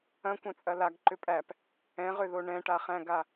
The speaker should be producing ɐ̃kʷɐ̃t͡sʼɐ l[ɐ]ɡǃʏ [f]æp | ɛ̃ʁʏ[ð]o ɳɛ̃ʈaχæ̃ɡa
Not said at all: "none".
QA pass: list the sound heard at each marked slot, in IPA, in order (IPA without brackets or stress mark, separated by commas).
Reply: a, pʼ, ð